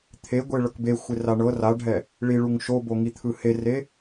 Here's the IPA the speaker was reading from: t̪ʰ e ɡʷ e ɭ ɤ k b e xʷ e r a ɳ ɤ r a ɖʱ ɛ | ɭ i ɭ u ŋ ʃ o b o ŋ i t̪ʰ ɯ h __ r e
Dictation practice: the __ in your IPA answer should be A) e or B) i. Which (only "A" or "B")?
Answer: A